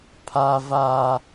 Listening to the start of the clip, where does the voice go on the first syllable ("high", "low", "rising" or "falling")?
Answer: high